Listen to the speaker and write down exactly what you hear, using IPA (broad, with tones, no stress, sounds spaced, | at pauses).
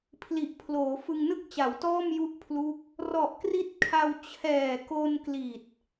pʰ l i˨˩ ʔ pʰ l oː˩˦ f ɯ˧ ŋ n ɯ˥˩ k̚ t͡ɕ a˩˦ w t ɔː˥˩ m j u˦˥ ʔ pʰ l u˦˥ k̚ | r ɔ˨˩ ʔ k r i˦˥ t̚ kʰ a˧ w t͡ɕʰ ɛː˨˩ k o˧ n k l i˨˩ t̚